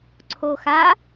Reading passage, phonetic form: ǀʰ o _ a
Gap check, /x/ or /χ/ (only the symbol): x